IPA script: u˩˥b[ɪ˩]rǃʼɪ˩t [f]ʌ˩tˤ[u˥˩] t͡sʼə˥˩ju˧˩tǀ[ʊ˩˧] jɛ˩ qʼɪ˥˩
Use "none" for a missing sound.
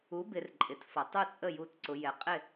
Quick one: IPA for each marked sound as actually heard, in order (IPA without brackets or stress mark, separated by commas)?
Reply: ɪ˩˧, f, u˥˩, ʊ˩˧